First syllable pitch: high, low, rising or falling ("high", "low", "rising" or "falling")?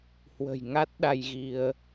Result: low